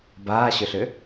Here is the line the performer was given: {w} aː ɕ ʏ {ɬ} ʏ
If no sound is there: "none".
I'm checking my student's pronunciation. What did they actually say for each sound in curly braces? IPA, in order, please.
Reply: b, ɬ

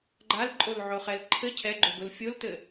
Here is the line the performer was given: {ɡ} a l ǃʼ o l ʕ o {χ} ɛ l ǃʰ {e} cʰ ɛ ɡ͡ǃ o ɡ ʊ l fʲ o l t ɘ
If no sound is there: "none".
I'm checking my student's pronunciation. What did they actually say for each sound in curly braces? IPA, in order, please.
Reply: ɡ͡ǃ, χ, ɘ

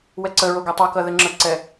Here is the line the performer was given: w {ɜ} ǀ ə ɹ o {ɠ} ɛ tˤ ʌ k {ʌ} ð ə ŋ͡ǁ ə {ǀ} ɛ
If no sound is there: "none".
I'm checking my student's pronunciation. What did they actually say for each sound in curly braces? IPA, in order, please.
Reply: ɛ, ɡ, ʌ, ǀ

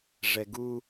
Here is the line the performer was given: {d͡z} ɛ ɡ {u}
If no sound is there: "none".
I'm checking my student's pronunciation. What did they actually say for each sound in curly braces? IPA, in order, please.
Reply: ʐ, u

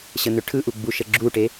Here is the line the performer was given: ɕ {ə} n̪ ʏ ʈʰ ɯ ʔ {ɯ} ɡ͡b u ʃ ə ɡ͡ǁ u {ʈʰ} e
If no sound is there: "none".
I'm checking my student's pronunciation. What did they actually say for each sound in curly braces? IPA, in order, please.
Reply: ə, u, ʈ

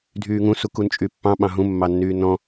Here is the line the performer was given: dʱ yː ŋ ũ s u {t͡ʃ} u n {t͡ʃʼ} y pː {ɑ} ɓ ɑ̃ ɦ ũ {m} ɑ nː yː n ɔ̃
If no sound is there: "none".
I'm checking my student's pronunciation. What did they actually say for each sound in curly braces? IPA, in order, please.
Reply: k, t͡ʃʼ, ɑ̃, mː

